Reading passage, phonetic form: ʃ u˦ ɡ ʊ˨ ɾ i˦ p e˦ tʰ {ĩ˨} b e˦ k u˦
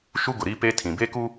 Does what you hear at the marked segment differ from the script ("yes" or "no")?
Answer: no